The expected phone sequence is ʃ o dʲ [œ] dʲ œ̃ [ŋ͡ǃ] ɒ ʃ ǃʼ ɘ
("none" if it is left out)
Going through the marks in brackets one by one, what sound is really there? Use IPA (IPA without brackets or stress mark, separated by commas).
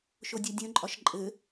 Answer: œ, ǃʼ